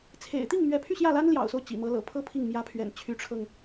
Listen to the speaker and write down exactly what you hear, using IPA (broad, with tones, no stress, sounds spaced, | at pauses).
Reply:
t͡sʰ ḛ˨˩ ɪ̯ t̪ i˥˩ ŋ m ɥ ɛ˧˥ pʰ y˥˧ ɕ j ä˥˩ l a˥ n l j ɑ̰˨˩ ʊ̯ s o˦ ʊ̯ t͡ɕ ḭ˨˩ m ɤ˧˥ l ɤ̰˨˩ pʰ ɤ˥ pʰ i˥˩ ŋ m j ä˧˥ pʰ ɥ ɛ̰˨˩ n t͡ɕʰ y˧˥ ʈ͡ʂʰ ɤ˧ ŋ